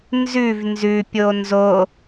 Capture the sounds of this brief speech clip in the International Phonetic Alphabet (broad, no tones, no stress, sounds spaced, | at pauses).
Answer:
n z ʉ v n z ʉ pʲ o n z o